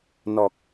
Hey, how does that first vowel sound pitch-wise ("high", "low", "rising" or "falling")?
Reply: low